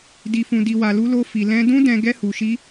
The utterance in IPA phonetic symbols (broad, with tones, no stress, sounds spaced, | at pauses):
d i˧ f ũ˧ d i˧ w a˧ l u˦ l o˦ f i˧ l ɛ̃˦ d ũ˦ d ɛ̃˧ ɡ ɛ˦ h u˧ ʃ i˦